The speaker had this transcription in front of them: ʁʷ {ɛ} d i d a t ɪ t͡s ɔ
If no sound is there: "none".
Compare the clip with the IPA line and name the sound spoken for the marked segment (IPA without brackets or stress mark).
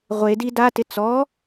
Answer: e